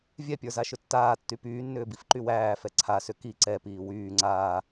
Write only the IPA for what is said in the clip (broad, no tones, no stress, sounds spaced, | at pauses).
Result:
vʲ ɛ pʲ ə˞ z a ʃ ʏ tː aː tː y p yː nː ʏː b i f ǃ y w æː f ɛ ǀʰ a s ʏ k i ǀ ɛ p iː w yː ŋ͡ǀ aː